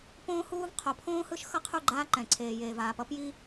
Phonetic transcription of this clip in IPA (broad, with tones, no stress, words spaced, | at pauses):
põː˦huː˦v qʰo˨˦pʰõː˦hɯ˦ʃ xʌ˦qʰu˦˨ɡ͡ǃaː˦ ǃɛ̃˨ǀʰeː˨jeː˨v aː˨pʌ˦pji˦